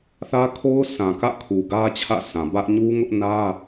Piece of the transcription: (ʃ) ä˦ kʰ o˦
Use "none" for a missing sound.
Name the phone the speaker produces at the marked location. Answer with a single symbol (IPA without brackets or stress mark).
θ